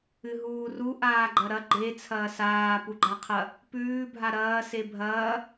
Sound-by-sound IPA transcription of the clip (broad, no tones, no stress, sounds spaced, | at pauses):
ɨ ɦ uː r u ʔ aː ɡ͡ǃ ɐ ɾ ɐ ɡ͡ǃ e t͡sʰ ɐː s aː p u ɡ͡ǃ a qʰ ɐ | p ʉː bʱ a ɾ ɐː s e bʱ ɐː